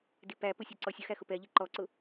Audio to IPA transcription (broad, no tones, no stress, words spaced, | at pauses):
dipæpʊ sʲɔǀɔsʲʊxæ xʊpɛʎi ǃɔǀʊ